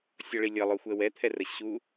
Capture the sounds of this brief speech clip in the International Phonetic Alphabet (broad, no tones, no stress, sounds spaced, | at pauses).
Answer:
sʲ ʌ ɭ i lʲ ʌ lˠ o xʷ ɛ w ɛ t̪ʰ ɛ r ə ɕ u